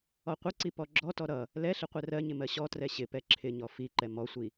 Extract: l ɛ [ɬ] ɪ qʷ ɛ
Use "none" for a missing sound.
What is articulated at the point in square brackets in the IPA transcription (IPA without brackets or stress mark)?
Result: ɬ